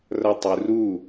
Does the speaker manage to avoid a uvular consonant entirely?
yes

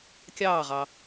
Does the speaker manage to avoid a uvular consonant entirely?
no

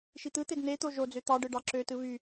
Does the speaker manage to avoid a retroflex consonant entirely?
no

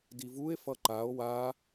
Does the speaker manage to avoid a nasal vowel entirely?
yes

